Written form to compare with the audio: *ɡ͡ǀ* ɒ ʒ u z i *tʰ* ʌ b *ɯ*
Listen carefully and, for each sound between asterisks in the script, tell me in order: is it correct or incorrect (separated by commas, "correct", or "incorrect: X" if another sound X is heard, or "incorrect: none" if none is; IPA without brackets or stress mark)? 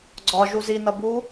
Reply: correct, incorrect: n, incorrect: u